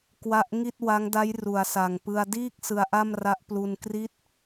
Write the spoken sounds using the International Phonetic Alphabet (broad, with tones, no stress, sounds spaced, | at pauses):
k w a˦˥ ʔ ŋ i˥˩ t̚ w a˦˥ ŋ d a˦˥ j r u˩˦ a̯ s a˨˩ ŋ p ɯ˧ a̯ d iː˥˩ k̚ s ɯ˧ a̯ ʔ a˥˩ m r a˦˥ ʔ p l u˧ n k r i˦˥ t̚